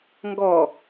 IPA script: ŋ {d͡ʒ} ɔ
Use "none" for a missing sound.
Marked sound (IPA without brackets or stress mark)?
ɡ